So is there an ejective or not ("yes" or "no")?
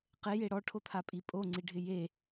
yes